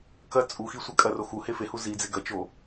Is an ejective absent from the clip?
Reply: no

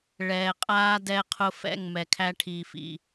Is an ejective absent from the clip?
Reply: no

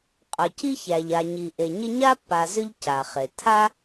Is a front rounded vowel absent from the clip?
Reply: no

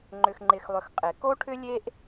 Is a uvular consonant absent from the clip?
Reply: no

